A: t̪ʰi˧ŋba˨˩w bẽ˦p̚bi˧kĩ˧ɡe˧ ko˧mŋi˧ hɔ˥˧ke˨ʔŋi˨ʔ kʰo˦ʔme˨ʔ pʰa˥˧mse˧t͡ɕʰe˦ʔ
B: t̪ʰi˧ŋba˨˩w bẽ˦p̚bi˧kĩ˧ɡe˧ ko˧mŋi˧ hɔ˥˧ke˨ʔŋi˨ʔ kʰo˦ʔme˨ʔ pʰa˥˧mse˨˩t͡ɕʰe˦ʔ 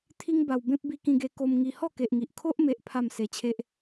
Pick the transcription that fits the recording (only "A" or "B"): A